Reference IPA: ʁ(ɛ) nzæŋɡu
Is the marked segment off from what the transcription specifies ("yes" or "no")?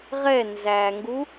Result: no